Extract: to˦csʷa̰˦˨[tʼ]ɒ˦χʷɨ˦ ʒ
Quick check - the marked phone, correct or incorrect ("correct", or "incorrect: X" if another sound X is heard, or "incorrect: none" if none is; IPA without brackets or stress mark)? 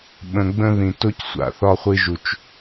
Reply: incorrect: θ